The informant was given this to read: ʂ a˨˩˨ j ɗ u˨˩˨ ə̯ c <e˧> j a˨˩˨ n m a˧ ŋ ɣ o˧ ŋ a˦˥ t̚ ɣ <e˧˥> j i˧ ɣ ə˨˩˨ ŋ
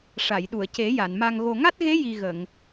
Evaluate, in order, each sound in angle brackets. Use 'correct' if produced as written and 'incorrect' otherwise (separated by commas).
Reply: incorrect, correct